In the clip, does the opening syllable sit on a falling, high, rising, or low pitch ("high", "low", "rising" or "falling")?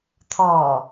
low